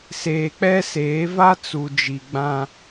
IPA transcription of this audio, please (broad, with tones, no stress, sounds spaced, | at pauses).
s eː˨ k͡p ɛ˦ s eː˨˦ v a˦ t͡s u˨ d͡ʒ i˨ ɡ͡b ã˦